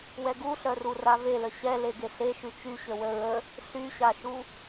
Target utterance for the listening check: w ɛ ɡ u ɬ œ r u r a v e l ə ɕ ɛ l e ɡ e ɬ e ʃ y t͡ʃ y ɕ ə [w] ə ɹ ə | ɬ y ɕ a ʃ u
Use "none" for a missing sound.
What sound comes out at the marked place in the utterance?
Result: w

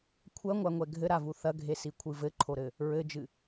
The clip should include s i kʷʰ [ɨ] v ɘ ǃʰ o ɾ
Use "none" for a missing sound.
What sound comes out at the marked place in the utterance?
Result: ɨ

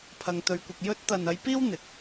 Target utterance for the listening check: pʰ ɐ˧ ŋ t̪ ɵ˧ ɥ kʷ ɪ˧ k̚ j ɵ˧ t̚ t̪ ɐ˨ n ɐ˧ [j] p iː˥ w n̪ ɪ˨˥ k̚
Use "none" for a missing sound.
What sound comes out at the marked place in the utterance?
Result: j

